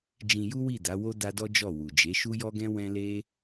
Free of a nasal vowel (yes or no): no